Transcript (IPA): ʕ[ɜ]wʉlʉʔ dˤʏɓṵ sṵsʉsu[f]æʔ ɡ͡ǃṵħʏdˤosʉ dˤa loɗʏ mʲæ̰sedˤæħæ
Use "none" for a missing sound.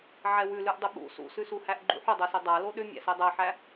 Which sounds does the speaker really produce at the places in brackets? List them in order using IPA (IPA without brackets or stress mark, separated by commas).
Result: ɛ, h